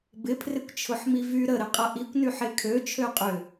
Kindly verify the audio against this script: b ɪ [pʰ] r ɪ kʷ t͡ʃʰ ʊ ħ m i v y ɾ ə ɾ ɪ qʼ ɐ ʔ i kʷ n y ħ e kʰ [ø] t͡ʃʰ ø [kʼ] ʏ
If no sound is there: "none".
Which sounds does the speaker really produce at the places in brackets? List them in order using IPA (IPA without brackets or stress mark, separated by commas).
pʰ, ø, qʼ